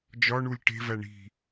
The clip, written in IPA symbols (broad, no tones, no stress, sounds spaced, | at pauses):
d͡ʒ ɒ ɳ u lʲ ʈ e̤ v æ ɳ i̤